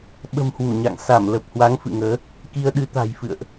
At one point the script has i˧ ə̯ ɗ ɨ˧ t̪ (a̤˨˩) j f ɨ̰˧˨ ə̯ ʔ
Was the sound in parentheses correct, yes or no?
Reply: yes